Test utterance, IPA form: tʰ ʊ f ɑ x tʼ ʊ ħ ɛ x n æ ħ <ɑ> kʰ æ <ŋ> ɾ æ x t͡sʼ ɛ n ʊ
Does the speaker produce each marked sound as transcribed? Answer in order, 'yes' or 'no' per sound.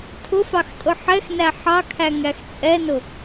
yes, yes

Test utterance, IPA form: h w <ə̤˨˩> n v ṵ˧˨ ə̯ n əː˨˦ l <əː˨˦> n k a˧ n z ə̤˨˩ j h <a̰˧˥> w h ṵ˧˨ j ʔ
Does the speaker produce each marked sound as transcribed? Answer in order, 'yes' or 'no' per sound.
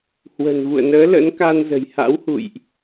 yes, no, yes

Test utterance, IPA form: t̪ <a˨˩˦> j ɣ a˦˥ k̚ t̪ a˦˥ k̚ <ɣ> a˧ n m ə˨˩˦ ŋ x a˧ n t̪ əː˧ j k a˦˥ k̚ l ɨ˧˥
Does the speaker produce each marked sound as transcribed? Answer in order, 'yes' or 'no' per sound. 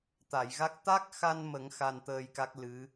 no, no

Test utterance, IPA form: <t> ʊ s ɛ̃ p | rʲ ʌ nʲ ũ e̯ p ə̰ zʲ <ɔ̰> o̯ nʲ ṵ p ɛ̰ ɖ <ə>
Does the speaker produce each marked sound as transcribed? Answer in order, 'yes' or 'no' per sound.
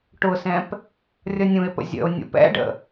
no, no, no

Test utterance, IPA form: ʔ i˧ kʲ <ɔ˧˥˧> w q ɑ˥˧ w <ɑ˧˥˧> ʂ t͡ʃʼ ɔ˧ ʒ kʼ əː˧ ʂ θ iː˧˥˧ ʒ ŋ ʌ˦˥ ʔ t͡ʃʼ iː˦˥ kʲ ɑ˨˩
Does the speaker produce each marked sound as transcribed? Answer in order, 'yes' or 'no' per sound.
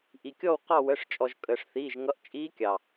no, no

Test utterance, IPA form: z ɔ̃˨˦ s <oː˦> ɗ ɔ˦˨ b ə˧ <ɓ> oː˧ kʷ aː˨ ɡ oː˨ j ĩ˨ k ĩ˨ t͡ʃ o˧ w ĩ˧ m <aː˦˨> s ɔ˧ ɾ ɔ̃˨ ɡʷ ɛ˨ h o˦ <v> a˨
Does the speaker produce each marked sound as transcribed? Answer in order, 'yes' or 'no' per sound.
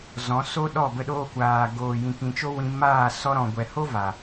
no, no, yes, yes

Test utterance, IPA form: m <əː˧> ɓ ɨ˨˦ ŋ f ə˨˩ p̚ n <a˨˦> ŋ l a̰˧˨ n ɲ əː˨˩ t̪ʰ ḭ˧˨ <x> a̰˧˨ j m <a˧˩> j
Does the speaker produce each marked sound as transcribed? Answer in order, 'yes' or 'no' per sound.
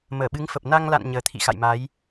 no, no, yes, no

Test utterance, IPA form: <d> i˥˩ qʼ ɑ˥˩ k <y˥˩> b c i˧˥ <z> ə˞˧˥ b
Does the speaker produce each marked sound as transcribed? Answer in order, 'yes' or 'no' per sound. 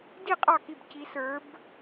yes, no, no

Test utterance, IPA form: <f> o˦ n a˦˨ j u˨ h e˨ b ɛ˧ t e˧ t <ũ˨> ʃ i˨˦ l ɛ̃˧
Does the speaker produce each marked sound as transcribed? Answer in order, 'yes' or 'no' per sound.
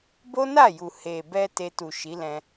no, no

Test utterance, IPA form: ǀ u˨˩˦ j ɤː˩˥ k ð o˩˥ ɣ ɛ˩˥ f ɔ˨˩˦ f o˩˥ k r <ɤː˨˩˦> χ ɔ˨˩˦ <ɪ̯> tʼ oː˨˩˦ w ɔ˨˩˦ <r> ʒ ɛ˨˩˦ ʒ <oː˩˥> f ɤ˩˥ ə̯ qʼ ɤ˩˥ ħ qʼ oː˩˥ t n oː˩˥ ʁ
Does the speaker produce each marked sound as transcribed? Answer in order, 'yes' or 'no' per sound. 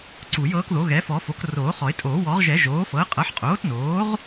no, yes, no, yes

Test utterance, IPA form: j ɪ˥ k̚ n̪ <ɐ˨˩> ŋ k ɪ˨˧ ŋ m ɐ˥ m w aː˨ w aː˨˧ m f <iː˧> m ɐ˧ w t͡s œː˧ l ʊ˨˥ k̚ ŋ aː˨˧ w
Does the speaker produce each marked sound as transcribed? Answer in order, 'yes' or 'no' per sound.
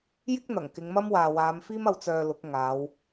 yes, no

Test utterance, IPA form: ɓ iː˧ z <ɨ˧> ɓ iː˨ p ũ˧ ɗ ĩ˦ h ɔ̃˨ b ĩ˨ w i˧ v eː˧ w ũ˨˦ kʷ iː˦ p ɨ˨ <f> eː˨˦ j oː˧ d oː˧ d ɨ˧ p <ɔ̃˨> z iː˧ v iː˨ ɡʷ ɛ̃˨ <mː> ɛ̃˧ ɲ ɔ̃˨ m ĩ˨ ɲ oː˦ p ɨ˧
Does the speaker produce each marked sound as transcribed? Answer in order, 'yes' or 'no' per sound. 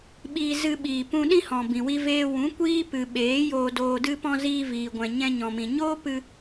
yes, no, no, no

